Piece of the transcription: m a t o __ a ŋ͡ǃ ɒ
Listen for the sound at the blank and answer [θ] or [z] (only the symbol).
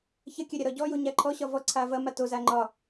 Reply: z